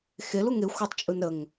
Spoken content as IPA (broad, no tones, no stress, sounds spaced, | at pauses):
x e l u ŋ e xʷ ə tˤ t͡ʃʼ ɯ n ɾ ə ŋ